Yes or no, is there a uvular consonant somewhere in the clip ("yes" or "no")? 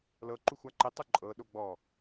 no